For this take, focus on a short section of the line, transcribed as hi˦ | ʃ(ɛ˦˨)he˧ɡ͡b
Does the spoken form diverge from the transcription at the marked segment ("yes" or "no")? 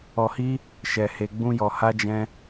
yes